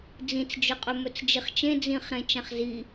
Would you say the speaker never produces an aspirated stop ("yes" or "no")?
yes